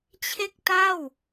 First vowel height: mid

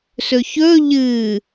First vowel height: mid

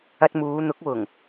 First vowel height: low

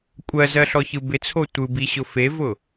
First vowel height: mid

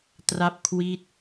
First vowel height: low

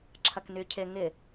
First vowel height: low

